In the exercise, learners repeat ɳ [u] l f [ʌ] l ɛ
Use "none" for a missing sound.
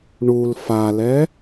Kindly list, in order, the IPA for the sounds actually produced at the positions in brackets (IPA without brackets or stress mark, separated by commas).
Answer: u, a